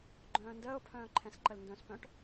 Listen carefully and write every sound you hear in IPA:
ɡ͡ǃ œ̃ː n d əː ʊ̯ pʰ œ̃ː ǃʰ ɛ̃ s ǃ ə l n d œ̃ s p œ̃ ʈ

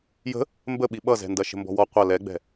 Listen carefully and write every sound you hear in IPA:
j ə̤ | m b ə ɓ i ɓ ʌ z ɛ̤ n d ɐ ʃ ə̤ m b ɔ̤ w ɔ qʷ ɐ l ɛ ɡ͡b ɛ̤

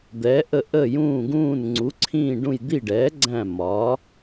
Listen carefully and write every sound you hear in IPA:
d̪ ɛː˩˥ ʔ ə˦˨ ʔ ə˦˨ j ũː˦˨ ɡ ũː˦˨ n ŋ͡ǀ u˩˥ ǀʰ ĩː˦˨ ɖ ũ˦˨ j d̪ i˦˨ ɖ ɛː˩˥ ɡ͡ǀ æ̃˦˨ m ɒ˩˥

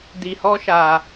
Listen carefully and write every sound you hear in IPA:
d i˧ h ɔ˦ ʃ a˧

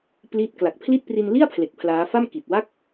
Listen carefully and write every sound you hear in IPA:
p l i˦˥ t̚ k l a˨˩ k̚ pʰ l i˥˩ t̚ p r i˧ n l i˥˩ a̯ pʰ l e˨˩ k̚ pʰ l aː˦˥ f a˥˩ m k i˨˩ t̚ w a˥˩ k̚

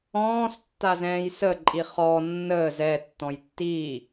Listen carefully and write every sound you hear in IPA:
ɔ̃ː s tː a z ɛ̃ː j s ə ǃʼ i χ ɔ nː əː z ɛ tː ɔ̃ j tː iː

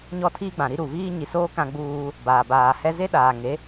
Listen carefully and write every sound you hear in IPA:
ɲ ɔ˦˨ tʰ iː˦ ɡ͡b ã˨ ɾ i˦ ɾ u˨ v iː˦ ɲ i˨ s oː˦ k ã˦ ɡ͡b uː˦ | b aː˨ b aː˨ h ɛ˦ z e˦ ɗ aː˨ ŋ e˨˦

